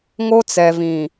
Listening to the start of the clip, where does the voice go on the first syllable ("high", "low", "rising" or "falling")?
high